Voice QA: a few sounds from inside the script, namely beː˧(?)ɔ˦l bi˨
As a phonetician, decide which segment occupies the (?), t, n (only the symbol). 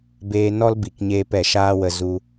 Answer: n